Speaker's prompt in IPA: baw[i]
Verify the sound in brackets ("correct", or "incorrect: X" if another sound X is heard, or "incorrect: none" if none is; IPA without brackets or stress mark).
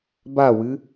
incorrect: ɨ